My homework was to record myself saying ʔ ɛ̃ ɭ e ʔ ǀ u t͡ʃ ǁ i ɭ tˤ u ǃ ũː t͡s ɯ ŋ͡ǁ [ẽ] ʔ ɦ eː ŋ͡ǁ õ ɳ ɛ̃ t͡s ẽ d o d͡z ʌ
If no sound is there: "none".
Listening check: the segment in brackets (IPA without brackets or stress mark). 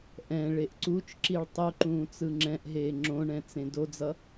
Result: ɛ̃